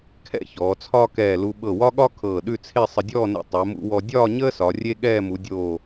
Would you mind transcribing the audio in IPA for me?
kʰɛ̰˥˧çɔː˩˧t͡sʰɒː˥ kɛː˧˩lu˧ ɓɤ˧˩ wɒ˥ɠɒ˥ kʰɤː˧˩ɗʉ˥˧t͡sʰe˥˧ sˤə˧dʲɔː˥˧nḛ˧ tˤɛ˩˧mṵ˧wɔ˧ dʲɒː˥˧ɲəː˥ sɒ˩˧rʲe˥ɠɛː˥˧ mu˩˧dʲoː˧˩

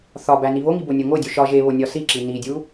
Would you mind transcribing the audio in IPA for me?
θɒbæ niβoŋi bonʲoŋodʲu ʃɒ ʒeβo nʲɒsiǁi nidʲu

